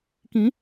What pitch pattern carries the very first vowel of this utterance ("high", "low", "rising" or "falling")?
rising